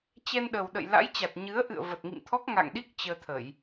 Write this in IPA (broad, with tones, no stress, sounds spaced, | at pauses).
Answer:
t͡ɕ ɛ˧ n ɗ ə˨˩ w ɗ ə̰˧˨ j l a̰˧˥ j t͡ɕ a˨˩ t̚ ɲ ɨ˨˦ ə̯ ʔ ɨ̰˧˨ ə̯ v ə˨˩ t̚ ŋ ḭ˧˨ m t̪ʰ ɔ˦˥ k̚ ŋ a̰˧˨ ŋ ɗ i˦˥ k̚ t͡ɕ əː˧ t̪ʰ ə˧˩˨ j